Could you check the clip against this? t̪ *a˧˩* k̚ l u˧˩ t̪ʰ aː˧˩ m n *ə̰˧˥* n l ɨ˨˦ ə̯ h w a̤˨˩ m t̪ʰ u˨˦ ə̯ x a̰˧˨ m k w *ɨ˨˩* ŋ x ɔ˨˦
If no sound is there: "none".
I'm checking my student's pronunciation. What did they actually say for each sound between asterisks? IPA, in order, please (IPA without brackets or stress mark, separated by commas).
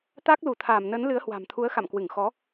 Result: a˦˥, ə˨˦, ɨ˧˩